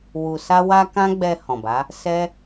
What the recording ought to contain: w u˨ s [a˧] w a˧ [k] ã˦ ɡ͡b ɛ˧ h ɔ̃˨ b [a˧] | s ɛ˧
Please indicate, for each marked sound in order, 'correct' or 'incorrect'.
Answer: correct, correct, incorrect: a˨˦

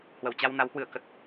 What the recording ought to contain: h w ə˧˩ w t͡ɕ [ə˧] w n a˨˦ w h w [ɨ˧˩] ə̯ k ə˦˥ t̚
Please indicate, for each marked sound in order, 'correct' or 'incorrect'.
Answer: incorrect: a˧, correct

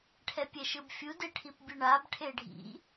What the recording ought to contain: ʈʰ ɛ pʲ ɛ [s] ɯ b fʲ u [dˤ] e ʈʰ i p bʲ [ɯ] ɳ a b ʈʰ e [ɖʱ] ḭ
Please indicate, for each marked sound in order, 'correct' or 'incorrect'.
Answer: incorrect: ʃ, incorrect: d, correct, correct

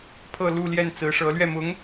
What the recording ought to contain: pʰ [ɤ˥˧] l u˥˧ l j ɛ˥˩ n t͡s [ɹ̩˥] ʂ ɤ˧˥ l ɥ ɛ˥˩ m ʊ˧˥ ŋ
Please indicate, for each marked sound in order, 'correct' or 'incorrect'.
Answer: correct, incorrect: ɹ̩˧˥

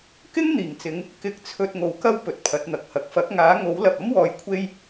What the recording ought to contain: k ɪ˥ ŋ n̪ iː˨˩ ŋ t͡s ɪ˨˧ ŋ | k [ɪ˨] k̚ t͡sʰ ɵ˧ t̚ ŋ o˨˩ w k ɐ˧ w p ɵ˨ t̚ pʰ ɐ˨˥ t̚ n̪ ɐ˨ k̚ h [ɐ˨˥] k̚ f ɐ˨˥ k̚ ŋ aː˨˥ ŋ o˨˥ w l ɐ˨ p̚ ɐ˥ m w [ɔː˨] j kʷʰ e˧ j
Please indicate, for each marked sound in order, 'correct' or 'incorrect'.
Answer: incorrect: ɪ˧, incorrect: ɐ˨, correct

